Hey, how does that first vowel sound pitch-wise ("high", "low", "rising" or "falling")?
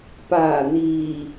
low